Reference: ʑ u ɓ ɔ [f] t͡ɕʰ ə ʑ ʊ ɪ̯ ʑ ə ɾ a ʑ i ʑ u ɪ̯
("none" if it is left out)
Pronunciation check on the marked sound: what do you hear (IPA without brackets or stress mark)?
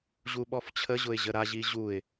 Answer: f